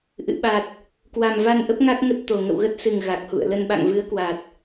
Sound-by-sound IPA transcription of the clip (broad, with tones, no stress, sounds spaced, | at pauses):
ʔ ɨ̰˧˨ ɓ a˨˩ t̚ | k w a˨˩ m v a˧ n ʔ ə˦˥ p̚ ŋ a˦˥ k̚ ŋ ə˦˥ t̚ t̪ o˨˩ ŋ ə̰˧˨ w ɣ ə˦˥ t̚ s ɨ˨˩ ŋ ɣ a˨˩ k̚ h ṵ˧˨ ə̯ l ə˧ n ɓ a̰˧˨ ŋ v ɨ˨˦ ə̯ k w a˨˩ t̚